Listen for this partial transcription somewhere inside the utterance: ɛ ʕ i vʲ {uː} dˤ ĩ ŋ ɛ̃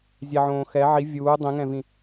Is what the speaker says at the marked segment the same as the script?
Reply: yes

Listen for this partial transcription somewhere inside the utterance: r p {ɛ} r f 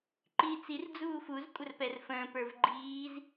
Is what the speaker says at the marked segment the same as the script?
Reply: yes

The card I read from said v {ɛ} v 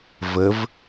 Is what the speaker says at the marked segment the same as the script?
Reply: no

